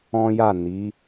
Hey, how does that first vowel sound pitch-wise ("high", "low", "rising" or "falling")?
high